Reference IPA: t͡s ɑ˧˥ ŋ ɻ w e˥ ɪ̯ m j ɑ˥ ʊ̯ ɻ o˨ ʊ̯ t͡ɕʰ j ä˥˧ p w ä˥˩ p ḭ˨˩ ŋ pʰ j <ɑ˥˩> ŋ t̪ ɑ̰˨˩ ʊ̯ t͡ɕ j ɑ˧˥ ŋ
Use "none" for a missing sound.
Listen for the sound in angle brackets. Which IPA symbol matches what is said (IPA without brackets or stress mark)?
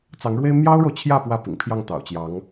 ɑ˥˩